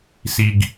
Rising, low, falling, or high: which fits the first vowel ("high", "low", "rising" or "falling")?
low